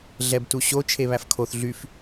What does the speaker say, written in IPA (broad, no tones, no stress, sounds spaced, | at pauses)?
ɮ ɛ b t u ɕ o t͡ʃʰ e β æ f kʰ o θ ɮ y f